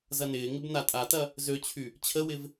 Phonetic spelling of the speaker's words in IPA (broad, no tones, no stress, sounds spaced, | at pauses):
z ɐ n ɪː ŋ ɪ b n a tʼ a t ɐ | z ø t͡ɕʰ y | t͡ɕʰ ə w ɪ v